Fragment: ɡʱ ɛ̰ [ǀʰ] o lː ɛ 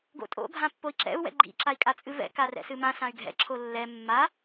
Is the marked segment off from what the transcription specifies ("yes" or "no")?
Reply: yes